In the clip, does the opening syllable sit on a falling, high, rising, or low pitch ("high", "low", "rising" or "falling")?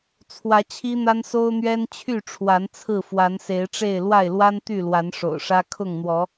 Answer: rising